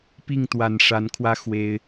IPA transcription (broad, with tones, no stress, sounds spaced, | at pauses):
p i˥˨ ŋ t̪ w a˨˩ n ʂ a˨˦ n kʰ w ä˦ x w e˦ ɪ̯